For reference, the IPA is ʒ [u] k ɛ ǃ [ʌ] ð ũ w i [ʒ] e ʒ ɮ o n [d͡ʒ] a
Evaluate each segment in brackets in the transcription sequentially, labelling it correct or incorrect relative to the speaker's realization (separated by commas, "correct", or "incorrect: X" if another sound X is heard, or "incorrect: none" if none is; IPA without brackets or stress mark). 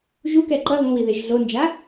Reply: correct, correct, incorrect: ð, correct